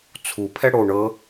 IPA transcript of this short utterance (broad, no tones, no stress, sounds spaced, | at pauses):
t͡sʰ u pʰ ɛ ɽ o ɳ ɤ